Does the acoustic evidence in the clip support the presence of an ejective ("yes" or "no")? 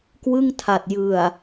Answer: no